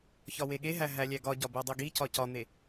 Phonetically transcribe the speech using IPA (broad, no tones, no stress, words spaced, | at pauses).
çɒweɠeɦæ ɦælʲæɡɒɟɒ bedˤiɡicɒ cɒn̪e